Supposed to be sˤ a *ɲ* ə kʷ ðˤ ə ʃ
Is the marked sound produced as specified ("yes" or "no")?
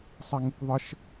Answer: no